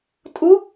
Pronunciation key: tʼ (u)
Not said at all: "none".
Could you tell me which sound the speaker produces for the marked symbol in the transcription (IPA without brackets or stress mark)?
u